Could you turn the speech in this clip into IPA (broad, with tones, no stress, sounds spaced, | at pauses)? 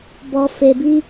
b ɔ˦ f e˧ b i˦